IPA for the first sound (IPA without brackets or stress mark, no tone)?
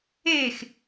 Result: e